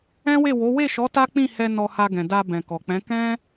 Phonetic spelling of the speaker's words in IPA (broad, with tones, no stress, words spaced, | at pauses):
ɛ̃˦we˦˨wo˨˦ we˦˨ʃɔ˨˦ ta˦k͡pĩ˦˨hɛ˧ nɔ˧ha˧ɡɛ̃˨da˧ bɛ̃˨kɔ˨k͡pɛ̃˨˦ kɛ̃˦